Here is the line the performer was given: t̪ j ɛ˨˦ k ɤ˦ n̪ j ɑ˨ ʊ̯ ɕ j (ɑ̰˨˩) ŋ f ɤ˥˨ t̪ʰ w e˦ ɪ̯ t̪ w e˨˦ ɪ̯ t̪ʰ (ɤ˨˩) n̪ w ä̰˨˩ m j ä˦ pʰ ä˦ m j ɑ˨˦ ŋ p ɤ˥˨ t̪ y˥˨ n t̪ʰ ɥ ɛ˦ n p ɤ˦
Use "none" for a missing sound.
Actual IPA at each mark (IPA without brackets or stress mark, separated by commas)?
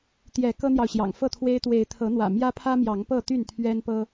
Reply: ɑ̰˨˩, ɤ˨˦